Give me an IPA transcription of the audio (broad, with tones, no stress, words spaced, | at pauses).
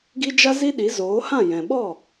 ɡi˦d͡ʒa˦zi˦ɗi˨˦ zoː˨˦hã˦˨ jɛ̃˨ɓɔ˦˨